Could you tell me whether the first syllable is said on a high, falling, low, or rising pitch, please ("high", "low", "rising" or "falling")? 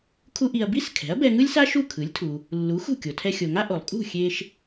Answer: high